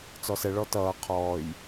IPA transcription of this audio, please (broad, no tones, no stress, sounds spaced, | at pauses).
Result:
t͡s ɔ s ɛ ɭ ɔ t ʌː qʰ ɔː j